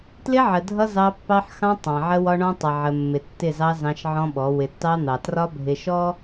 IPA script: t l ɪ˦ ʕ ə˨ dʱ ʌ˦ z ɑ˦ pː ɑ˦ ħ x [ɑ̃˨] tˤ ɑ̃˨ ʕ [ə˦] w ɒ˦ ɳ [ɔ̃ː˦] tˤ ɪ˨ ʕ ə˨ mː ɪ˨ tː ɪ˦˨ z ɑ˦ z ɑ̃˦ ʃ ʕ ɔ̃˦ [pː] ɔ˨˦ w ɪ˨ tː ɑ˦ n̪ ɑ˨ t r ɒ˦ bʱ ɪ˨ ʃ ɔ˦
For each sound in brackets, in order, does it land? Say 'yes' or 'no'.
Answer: no, yes, no, no

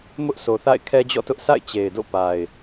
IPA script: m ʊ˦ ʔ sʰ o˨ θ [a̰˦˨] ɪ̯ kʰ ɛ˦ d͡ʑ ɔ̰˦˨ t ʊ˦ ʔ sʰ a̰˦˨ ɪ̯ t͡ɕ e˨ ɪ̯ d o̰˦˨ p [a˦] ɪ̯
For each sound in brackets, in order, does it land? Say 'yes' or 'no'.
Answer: yes, no

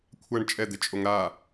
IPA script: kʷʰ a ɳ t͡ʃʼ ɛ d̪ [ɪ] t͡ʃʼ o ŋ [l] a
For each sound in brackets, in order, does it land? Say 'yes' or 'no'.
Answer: yes, no

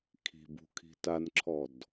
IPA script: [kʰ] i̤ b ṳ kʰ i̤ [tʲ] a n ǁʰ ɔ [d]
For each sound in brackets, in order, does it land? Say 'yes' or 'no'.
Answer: yes, no, yes

